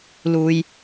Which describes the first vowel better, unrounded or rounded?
rounded